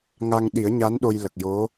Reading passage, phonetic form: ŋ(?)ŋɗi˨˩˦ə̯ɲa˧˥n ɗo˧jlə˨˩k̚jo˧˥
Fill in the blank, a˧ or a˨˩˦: a˧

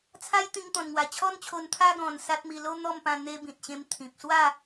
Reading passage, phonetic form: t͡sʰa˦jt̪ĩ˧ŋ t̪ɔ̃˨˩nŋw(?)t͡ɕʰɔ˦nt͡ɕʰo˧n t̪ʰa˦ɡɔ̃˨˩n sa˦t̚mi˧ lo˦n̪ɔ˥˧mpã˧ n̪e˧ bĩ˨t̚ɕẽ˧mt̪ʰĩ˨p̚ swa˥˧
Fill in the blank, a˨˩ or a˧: a˨˩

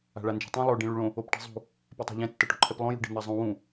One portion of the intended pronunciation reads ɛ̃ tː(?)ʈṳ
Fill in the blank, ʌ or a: ʌ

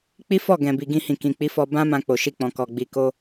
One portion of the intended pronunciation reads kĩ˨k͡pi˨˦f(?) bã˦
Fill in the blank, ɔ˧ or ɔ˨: ɔ˧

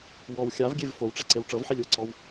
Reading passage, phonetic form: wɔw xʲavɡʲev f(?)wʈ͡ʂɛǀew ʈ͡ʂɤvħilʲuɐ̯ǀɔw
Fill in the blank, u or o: o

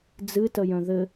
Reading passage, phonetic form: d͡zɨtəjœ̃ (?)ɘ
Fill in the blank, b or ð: ð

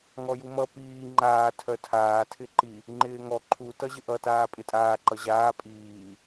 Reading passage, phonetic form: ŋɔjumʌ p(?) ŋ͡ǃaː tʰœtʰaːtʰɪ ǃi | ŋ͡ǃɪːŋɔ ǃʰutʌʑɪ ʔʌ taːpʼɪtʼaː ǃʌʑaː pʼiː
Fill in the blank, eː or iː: iː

